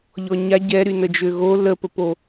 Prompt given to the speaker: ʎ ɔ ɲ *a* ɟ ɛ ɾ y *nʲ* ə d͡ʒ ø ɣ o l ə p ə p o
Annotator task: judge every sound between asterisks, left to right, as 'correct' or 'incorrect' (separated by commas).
correct, incorrect